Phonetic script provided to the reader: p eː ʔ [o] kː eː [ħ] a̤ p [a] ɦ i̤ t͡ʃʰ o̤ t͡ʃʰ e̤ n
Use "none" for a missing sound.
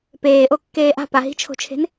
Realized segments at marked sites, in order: o, ʔ, a

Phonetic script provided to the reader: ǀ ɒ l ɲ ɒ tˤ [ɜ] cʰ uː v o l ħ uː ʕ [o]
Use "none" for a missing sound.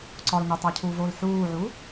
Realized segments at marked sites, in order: æ, u

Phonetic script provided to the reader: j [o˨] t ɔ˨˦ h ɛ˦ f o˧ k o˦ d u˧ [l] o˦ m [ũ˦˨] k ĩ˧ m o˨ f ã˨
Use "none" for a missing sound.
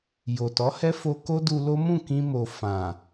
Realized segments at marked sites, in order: o˨, l, ũ˦˨

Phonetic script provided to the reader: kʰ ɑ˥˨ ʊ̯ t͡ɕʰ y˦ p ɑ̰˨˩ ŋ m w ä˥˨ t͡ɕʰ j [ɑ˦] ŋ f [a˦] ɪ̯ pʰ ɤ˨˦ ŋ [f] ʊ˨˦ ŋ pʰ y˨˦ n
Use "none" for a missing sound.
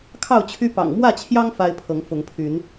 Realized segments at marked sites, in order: ɑ˦, a˦, f

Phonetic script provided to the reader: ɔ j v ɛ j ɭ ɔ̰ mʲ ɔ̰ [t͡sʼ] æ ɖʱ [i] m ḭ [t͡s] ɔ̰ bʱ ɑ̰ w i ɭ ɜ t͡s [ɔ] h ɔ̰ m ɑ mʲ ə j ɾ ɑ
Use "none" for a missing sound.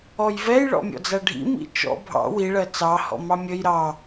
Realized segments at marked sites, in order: d͡z, ḭ, t͡ʃ, ɑ

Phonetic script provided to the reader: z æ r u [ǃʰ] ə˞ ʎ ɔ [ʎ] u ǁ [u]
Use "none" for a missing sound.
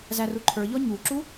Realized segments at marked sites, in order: ǃʰ, ɲ, u

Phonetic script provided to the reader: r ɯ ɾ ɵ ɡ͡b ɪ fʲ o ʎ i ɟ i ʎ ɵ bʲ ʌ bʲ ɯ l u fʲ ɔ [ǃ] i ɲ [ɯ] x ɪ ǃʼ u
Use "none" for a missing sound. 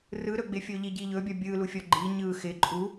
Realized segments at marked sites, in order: ɡ͡ǃ, ɯ

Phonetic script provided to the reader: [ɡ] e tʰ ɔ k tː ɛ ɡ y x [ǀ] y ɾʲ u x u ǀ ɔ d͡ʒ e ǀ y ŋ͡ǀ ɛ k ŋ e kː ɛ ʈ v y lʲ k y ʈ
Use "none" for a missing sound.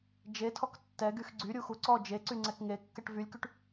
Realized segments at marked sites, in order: d͡ʒ, ɡ͡ǀ

